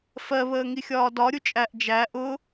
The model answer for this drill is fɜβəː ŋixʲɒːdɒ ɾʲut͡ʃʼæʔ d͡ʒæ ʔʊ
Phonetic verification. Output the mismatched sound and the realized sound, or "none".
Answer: none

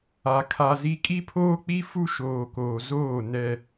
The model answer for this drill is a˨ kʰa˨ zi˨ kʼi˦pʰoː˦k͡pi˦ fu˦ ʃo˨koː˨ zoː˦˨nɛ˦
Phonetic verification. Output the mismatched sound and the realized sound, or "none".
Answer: o˨ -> oː˨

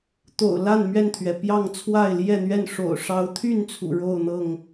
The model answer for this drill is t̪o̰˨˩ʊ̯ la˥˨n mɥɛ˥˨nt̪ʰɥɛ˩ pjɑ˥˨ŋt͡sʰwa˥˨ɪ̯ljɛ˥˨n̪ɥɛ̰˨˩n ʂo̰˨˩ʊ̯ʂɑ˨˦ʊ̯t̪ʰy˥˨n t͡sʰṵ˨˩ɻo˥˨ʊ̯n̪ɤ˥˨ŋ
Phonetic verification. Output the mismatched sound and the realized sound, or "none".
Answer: ɛ̰˨˩ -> ɛ˥˨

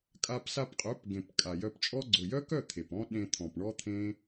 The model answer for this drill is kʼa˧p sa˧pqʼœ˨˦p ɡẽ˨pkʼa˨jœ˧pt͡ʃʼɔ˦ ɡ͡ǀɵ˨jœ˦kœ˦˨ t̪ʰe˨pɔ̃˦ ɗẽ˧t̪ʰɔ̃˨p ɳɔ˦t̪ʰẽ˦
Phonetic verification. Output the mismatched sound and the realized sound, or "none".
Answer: none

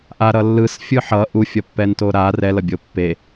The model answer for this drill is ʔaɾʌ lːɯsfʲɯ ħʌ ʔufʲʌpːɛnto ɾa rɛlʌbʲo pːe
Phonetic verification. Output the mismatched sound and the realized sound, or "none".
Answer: none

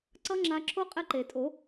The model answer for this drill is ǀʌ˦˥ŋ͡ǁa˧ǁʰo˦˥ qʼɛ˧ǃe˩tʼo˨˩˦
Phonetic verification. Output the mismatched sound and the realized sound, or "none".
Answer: none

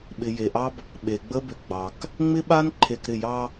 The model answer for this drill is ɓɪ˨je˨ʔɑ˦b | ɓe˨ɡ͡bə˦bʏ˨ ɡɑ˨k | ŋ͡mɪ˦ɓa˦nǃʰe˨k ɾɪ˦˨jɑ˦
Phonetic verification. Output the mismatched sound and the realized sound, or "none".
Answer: ɡ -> ɡ͡b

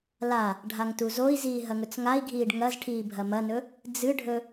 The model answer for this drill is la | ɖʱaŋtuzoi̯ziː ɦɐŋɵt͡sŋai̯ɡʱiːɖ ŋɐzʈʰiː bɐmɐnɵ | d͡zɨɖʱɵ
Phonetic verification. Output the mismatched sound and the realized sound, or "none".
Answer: b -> bʱ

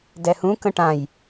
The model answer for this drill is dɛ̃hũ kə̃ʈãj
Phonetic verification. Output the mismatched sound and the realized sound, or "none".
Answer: ɛ̃ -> ɛ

